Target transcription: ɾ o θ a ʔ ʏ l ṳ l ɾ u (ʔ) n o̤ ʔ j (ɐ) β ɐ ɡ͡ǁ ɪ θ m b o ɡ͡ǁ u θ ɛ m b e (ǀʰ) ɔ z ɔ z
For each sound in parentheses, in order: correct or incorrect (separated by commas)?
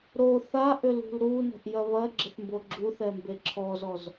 incorrect, correct, incorrect